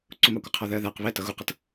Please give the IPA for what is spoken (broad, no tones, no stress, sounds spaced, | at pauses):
ǀ ʊ m ɑ kʷ ɪ qʰ ɔ ð ɜ ð æ q β ɛ t ʌ ɣ u q ʌ t